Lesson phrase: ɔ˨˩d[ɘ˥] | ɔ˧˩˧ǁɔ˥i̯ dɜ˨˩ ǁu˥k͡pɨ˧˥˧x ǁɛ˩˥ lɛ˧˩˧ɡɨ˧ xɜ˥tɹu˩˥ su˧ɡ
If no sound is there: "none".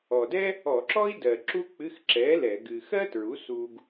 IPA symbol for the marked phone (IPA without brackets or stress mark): ɛ˥